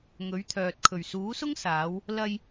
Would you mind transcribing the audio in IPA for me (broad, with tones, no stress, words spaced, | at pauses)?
ŋɵ˨˥ɥt̪ʰœː˨t̚ kʰɵ˨˩ɥsuː˨˥sʊ˥ŋ saː˨˧w | lɐ˧j